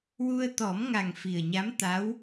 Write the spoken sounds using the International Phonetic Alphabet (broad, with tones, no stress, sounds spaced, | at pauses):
w u˧ ə̯ t̪ ɔ˨˩˦ m ŋ a˨˩ ŋ f i˨˩ ə̯ ɲ a˧˥ m t̪ a˧˥ w